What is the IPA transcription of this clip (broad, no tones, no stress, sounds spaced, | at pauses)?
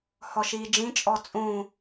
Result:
h ɔ ʃ iː d͡ʒ ĩ t͡ʃʼ ɔ t͡sʼ ũ